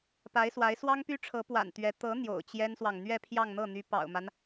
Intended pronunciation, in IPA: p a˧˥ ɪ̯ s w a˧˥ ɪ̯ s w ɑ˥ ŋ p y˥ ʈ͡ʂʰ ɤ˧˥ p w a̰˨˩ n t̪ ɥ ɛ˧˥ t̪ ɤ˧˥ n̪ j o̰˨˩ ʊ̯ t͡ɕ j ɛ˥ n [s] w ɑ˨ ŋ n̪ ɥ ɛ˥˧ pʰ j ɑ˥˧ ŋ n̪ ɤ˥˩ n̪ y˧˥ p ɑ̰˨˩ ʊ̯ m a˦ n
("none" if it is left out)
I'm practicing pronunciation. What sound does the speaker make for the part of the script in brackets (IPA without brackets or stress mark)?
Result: s